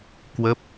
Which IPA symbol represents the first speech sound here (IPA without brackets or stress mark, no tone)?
k